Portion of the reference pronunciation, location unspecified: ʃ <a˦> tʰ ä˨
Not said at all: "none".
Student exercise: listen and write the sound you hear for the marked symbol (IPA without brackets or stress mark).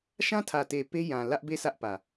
ã˦